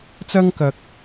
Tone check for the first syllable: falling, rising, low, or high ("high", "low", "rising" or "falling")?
high